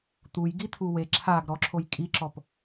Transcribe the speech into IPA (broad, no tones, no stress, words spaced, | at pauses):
t̪uj ɡit̪ʰuwe ǁʰaɡ ɾɔǁʰoj kʼiǁɔp